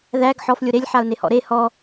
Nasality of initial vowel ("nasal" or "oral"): oral